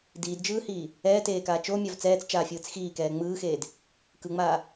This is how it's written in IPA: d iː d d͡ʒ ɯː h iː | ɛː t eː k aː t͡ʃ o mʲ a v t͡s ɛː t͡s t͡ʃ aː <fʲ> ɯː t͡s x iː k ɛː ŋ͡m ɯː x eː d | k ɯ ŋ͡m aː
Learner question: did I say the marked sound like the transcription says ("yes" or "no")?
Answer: yes